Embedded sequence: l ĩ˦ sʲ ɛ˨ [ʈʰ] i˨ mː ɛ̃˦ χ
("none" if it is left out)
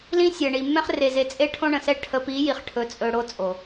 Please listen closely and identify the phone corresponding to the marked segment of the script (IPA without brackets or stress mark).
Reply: ɳ